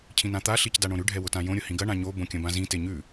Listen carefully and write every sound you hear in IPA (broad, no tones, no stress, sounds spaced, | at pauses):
cʰ ĩ n ã t̪ a ɬ i c d a ɳ õ ɾ ʉ ɖʱ ɛ w ʊ t ã j õ ɾʲ ʊ h ĩ ɡ ɐ ɳ ã ɲ o b õ kʲ ɐ̃ b ã z ĩ t e ɲ ʉ